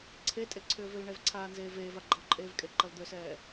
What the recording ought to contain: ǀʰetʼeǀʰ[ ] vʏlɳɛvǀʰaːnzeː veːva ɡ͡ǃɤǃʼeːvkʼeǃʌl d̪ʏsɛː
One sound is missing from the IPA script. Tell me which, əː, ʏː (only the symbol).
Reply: ʏː